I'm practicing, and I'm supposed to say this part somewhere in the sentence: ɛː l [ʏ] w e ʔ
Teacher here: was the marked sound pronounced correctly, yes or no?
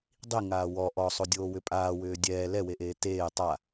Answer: no